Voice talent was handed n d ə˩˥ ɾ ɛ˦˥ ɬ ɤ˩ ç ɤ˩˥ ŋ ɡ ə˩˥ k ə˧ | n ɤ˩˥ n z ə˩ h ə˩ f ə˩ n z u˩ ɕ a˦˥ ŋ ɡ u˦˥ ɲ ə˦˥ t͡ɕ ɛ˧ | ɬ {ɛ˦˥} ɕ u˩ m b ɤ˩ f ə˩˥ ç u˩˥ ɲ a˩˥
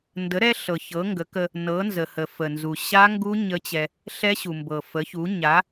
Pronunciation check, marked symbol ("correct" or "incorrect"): correct